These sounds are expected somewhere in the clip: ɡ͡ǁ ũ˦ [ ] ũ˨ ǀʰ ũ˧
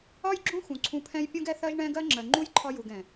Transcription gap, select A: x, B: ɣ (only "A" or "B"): A